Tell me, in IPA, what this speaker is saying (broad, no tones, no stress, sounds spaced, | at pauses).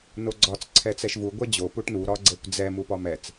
n o ɡ͡ǀ ɒ t͡s ǀʰ ɛ t͡s ɛ ʃ v u ɡʷ ɛ d͡ʑ o p u ʈ n u ɾ ɒ ɡ͡ǀ ɛ kʷ d͡z ɛ m u p ɒ m ɛ t͡s